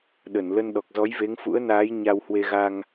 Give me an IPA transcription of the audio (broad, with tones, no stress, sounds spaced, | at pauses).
ɗ ə˧˩ n l ə˧ n ɗ ɔ˨˩ k̚ z ɔ˨˦ j v e˨˦ ŋ f ṵ˧˥ ə̯ n aː˨˦ j ɲ a˧ w h w e˧ ɣ a˧ ŋ